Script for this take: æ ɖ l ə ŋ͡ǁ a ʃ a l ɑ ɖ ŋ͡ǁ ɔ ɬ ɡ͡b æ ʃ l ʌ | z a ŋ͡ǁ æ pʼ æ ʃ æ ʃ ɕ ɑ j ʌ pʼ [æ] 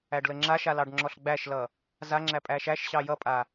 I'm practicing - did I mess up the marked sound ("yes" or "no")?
yes